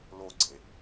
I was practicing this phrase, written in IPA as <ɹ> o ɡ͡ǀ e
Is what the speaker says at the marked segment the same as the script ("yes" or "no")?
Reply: no